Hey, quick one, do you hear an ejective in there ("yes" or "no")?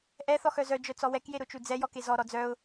no